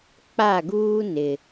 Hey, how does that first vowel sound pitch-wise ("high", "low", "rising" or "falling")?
falling